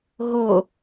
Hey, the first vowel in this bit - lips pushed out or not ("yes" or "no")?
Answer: yes